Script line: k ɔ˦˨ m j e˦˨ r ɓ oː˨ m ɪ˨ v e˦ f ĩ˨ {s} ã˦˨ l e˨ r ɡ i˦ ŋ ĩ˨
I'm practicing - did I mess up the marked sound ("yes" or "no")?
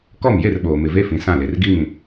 no